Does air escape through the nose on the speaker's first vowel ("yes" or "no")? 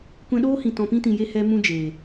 yes